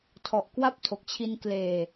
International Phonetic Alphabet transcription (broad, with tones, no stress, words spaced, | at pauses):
tʰɔ˨˩ʔkwa˥˩p̚tʰo˨˩k̚ t͡ɕʰi˧nkleː˨˩